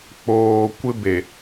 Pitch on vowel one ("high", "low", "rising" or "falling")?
low